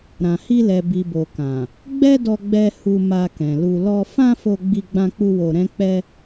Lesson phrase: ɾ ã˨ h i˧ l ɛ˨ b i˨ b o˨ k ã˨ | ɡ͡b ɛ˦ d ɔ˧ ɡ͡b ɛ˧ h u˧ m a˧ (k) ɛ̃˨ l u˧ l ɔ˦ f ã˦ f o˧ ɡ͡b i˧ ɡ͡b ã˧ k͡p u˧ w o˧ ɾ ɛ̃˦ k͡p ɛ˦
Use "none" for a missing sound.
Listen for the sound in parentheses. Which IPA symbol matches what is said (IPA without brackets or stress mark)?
k